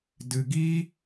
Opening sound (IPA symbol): d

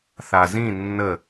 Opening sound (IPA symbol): θ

